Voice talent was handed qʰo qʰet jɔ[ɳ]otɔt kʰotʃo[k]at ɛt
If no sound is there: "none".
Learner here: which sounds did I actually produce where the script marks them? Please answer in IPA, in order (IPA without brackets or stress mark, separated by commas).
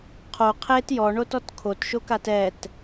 ɳ, k